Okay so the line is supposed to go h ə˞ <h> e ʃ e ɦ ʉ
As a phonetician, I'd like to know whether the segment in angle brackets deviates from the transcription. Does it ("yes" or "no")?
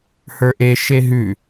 yes